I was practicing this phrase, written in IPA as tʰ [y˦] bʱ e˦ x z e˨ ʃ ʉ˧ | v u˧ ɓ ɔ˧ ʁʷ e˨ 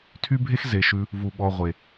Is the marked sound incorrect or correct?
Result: correct